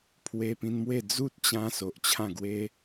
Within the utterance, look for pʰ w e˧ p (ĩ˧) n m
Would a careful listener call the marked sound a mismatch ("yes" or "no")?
no